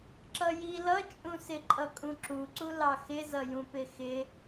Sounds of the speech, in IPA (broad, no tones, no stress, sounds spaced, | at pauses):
ǁ ʌ j i l ʌ t͡ʃʼ ũ s ɪ ǃʼ ʌ kʼ ũ ǁ u ǀ u l ɑ x ɪ z ʌ j ũ p ɪ x ɪ